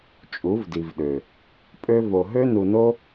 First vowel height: high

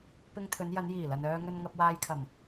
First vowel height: high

